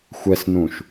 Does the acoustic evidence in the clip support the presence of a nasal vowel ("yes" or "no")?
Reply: yes